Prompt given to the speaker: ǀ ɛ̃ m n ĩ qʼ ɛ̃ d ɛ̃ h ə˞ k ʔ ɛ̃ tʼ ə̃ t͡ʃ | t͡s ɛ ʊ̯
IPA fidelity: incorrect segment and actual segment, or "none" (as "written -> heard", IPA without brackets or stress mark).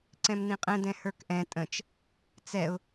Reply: none